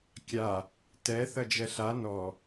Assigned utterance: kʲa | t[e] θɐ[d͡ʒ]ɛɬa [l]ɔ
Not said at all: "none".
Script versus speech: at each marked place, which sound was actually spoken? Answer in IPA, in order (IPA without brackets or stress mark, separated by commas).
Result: ɛ, d͡ʒ, n